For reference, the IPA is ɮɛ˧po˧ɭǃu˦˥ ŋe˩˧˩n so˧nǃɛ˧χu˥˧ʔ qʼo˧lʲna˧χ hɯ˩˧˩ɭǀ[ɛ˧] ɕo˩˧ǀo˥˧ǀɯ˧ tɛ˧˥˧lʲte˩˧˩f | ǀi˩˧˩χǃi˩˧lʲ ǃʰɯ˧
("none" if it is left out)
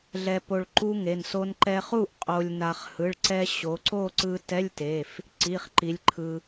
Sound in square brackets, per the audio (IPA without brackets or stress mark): ɛ˧